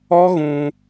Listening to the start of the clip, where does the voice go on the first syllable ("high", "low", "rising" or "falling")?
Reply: high